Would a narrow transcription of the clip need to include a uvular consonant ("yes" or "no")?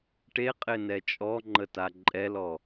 yes